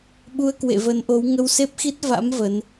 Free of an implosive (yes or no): no